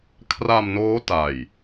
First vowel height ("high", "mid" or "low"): low